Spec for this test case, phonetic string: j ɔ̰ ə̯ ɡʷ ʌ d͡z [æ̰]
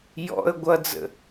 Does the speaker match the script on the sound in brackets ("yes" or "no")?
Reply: no